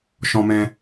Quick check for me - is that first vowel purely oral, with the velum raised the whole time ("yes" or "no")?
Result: no